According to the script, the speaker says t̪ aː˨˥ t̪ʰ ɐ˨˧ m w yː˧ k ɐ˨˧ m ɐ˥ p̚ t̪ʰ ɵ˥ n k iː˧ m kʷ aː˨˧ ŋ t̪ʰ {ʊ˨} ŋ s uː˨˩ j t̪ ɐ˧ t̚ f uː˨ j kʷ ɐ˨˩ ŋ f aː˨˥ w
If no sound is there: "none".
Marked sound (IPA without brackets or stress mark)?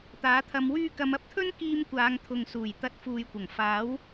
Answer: ʊ˨